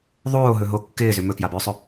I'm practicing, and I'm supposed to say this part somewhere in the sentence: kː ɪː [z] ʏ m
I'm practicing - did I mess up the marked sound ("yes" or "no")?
no